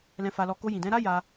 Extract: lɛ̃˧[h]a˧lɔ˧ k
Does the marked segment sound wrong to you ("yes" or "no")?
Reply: yes